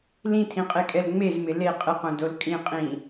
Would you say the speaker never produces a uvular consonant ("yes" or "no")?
no